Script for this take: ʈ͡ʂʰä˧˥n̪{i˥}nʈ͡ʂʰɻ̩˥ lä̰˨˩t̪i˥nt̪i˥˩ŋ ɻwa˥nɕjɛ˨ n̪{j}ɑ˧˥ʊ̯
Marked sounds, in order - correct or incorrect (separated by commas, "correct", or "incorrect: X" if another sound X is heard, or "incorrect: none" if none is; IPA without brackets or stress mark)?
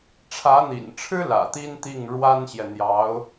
incorrect: ḭ˨˩, correct